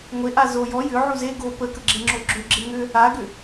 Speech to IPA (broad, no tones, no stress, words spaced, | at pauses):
ŋʷe ʔazo jɔ jʏ ʕuze ɡo pəkəɡ͡ǁe ŋ͡ǁoɡ͡ǁʏ ɡ͡ǁeŋʏ | aɡʏ